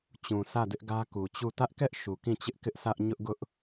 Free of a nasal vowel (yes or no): no